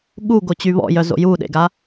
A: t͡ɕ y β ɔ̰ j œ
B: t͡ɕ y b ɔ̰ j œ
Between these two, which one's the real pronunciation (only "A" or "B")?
A